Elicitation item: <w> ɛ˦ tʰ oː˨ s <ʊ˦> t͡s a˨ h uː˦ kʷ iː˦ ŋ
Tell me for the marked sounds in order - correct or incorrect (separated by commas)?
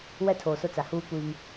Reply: correct, correct